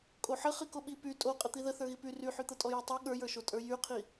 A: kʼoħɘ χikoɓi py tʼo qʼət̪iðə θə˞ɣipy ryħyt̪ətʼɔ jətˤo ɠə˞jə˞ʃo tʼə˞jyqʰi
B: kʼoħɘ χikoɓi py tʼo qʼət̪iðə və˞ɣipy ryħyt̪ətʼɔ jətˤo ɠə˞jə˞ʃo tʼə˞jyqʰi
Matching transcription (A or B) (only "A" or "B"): A